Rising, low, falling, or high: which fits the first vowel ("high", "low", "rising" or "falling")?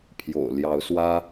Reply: low